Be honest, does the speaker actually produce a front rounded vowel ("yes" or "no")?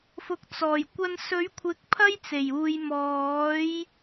no